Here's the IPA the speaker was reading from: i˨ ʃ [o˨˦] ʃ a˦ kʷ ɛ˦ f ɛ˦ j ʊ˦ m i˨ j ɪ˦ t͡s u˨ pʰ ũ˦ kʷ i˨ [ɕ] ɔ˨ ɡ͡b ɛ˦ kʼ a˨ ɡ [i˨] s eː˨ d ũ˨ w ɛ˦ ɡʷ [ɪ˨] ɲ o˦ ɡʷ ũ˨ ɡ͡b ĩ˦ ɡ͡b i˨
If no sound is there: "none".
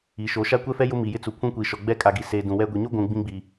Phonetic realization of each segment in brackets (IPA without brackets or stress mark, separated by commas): o˨˦, ʃ, i˨, i˨